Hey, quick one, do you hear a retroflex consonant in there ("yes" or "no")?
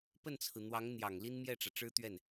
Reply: yes